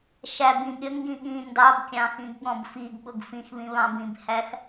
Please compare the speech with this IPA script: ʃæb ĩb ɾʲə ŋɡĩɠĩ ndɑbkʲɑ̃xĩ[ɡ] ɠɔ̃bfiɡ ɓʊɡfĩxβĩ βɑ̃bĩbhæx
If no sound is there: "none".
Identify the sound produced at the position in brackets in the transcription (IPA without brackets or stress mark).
ɡ